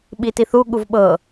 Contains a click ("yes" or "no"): no